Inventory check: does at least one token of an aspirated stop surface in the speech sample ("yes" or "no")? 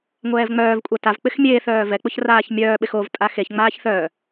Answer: no